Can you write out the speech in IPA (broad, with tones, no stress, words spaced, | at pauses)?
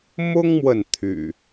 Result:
mʊ˦ŋmwə˨n t̪ʰy̰˨˩